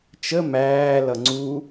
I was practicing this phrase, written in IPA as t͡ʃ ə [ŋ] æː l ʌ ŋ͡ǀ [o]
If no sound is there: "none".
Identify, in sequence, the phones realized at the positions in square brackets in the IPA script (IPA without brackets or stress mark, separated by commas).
m, u